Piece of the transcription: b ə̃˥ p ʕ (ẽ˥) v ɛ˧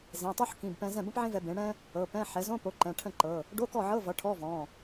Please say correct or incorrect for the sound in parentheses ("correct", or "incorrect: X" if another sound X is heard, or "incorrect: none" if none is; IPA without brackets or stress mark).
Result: correct